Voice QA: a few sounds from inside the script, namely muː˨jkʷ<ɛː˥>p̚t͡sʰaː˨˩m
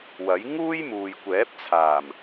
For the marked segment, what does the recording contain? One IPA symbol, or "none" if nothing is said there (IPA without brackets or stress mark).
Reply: ɛː˨˥